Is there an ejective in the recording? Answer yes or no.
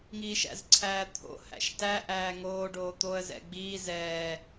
no